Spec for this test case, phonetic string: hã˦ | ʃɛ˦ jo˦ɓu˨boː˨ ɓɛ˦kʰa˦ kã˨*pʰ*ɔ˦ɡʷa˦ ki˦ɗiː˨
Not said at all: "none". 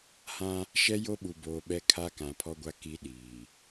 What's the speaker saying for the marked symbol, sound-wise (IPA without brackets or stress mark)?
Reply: pʰ